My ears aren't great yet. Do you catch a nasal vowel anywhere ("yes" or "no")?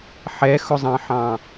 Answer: yes